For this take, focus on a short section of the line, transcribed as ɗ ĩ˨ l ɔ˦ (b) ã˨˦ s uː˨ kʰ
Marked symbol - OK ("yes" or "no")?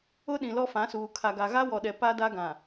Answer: no